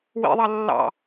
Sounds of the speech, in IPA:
w ḭ ðˤ ɑ lː ɑ̰

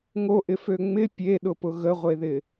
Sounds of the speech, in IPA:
ŋ o ʔ ɪ f ø ŋ͡m ɪ pʲ e ɗ ʊ p ʊ ɣ ə ʁʷ e ð ɪ

